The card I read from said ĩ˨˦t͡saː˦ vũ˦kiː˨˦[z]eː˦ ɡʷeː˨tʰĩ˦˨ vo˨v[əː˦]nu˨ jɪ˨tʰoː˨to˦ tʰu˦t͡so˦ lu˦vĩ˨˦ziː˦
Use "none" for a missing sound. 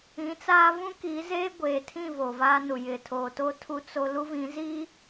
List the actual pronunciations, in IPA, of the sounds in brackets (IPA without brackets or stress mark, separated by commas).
z, aː˦